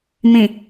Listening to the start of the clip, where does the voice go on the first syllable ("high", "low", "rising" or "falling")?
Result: low